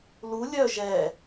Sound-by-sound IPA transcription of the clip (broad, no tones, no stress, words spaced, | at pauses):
lu lʲœ ʒɛ